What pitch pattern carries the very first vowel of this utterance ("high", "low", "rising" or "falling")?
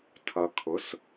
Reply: low